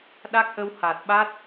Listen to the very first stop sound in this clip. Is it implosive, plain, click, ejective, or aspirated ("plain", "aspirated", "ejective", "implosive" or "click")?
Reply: implosive